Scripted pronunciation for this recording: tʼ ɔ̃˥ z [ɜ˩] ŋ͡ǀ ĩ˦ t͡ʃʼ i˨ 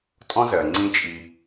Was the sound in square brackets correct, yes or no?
yes